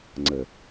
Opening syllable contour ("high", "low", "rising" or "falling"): low